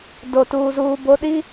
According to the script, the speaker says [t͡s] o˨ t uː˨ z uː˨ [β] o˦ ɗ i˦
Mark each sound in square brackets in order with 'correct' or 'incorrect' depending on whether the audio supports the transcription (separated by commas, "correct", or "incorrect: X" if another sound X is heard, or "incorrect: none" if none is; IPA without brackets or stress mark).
incorrect: d, incorrect: b